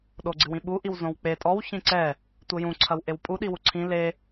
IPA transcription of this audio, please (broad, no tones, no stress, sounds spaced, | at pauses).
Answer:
ɗ o ɡ͡ǀ ɨ w ĩ ɓ u ʔ i w z õ w k͡p e tʼ ɔ w ç ĩ ǀ ɛ | tʷ ɘ j ũ ǀʰ ɐ w ʔ e w pʼ u ɗ i w u ǀʰ ĩ l e